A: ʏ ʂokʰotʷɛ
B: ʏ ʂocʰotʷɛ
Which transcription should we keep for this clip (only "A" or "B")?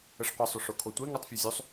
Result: A